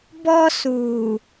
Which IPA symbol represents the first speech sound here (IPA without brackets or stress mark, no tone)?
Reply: b